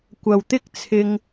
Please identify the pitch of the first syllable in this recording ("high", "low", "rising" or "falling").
low